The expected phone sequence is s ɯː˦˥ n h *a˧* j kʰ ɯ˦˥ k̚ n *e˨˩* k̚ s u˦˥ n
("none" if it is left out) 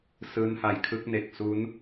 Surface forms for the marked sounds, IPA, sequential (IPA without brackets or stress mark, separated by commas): a˧, e˨˩